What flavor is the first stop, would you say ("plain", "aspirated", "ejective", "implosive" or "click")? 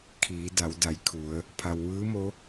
aspirated